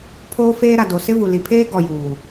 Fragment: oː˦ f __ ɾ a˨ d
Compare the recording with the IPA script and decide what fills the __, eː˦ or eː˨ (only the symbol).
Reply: eː˦